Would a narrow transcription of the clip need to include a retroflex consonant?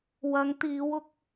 no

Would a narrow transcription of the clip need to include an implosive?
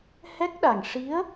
yes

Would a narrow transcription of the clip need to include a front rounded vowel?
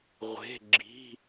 no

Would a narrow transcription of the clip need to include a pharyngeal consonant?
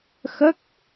no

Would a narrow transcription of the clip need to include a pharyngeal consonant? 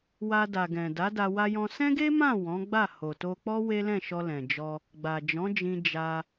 no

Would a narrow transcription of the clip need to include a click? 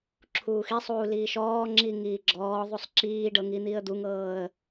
yes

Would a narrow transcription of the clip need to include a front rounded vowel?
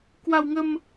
no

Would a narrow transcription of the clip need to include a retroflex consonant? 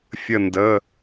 no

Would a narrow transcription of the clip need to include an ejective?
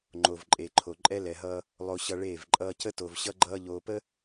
yes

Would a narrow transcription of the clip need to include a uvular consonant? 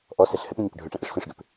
no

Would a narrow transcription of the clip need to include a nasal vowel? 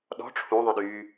yes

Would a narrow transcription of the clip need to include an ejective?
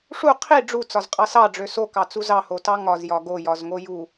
yes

